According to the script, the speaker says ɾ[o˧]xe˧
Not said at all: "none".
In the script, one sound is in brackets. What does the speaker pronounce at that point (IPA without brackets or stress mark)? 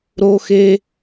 o˧